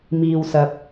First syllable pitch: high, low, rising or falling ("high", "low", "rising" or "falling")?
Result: low